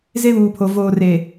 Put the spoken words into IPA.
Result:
z e˦ β uː˨ pʰ o˨ v oː˨ r e˨

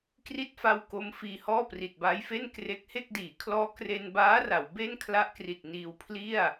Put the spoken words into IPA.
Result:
k r i˥˩ t̚ f a˦˥ w k o˦˥ m f iː˧ h ɔː˥˩ p r i˨˩ t̚ b aː˦˥ j f e˥˩ n k r e˦˥ k̚ h e˥˩ k̚ d iː˩˦ kʰ l ɔː˦˥ k r e˧ n b aː˦˥ r a˩˦ w b e˥˩ n kʰ l a˦˥ ʔ k r i˨˩ t̚ n iː˧ w pʰ l i˥˩ a̯

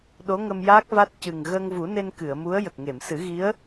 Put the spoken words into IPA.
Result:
ɗ o˧˥ ŋ ə˧ m j aː˦˥ k̚ v a˦˥ t̚ c ɨ˨˩ ŋ ɣ əː˧ ŋ v u˨˩˦ n e˧ n k ɨ˨˩˨ ə̯ m u˧˥ ə̯ j ə˨˩ k̚ ŋ e˨˩˨ m s ɨ˨˩˦ ɣ i˧˥ ə̯

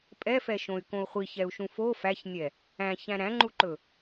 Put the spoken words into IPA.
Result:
pʼ ɛ f ɛ ʃ õ y̯ k õ u̯ χʷ i ç ɛ u̯ ʃ ũ f o f æ ç nʲ ɛ | æ̃ ç æ̃ ɾ æ̃ ŋ͡ǃ u ǃ ɵ

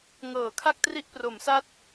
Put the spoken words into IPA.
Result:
ŋ ɤː˩˦ kʰ a˥˩ k̚ t r i˦˥ ʔ p r o˩˦ m s a˥˩ t̚

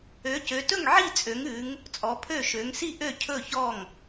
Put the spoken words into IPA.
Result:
ø˨˦ c ø˨˦ t ɵ˥˨ ŋ ʕ i˥˨ t͡sʼ ø˨˦ ŋ ʉ˨˦ ŋ | t͡sʼ ɔ˨˦ pʰ ø˥˨ ʃ ø˨˦ ŋ s i˥˨ ʔ ø˥˨ cʰ ɵ˥˨ ç ɔ˥˨ ŋ

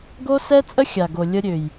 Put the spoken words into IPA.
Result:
ɡ o˦ s ɛ˦ t͡sʼ ə˦ xʲ a˨ ɡ o˨ lʲ ə˧ ɾʲ ø˨ j

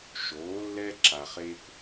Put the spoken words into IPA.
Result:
ʃ oː˨˥ lː ɛ˦ ǁ a˨ χ eː˦ kʷ

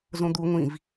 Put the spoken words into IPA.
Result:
z õ d̪ u ŋʷ ĩ v

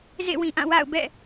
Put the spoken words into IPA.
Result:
z ḛ˦˨ w ĩ˨ ʔ ã˦˨ w a̰˦˨ ʊ̯ b ɛ̰˦˨

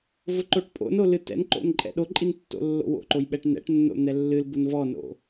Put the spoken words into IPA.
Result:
v ʊ ǃ o ʈ pʼ o̰ n o l ɨ t ɛ̰ n ǃ o̰ n ǃʼ ɛ̰ ɗ o ǃʼ i n tː o̰ lː o̰ w o̰ ǃ o j ɓ ɛ ʈ n ɛ̰ ʈ nː o̰ n̪ ɛ lː ɨ l b ʊ n v ɔ n o̰

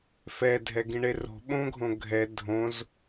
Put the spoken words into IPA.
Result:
f ɛ dʱ ɛ ɡ ĩ ɳ e r o̤ ɓ õ ɡʱ õ ɡʱ ɛ dʱ õ z

